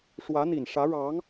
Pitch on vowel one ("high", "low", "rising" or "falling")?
rising